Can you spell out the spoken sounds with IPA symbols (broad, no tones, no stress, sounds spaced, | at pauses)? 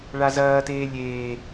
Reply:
ɭ a z ɐː t eː lʲ eː